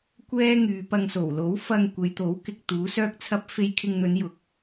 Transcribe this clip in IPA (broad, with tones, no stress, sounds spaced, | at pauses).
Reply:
kʷ ɛː˥ ŋ yː˨˧ p ɐ˧ ŋ s o˨˩ w l o˨˥ w f ɐ˧ ŋ kʷ e˨˧ j t̪ o˨˥ w k ɪ˨ k̚ t̪ uː˨˥ s œː˥ k̚ t͡sʰ ɐ˥ p̚ f e˧ j kʰ ɪ˧ ŋ n̪ ɵ˨˧ n j ʊ˨ k̚